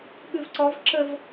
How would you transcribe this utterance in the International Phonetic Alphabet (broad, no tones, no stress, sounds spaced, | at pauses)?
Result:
ɠ ʉ v ǀ ɔ v ǁ ə v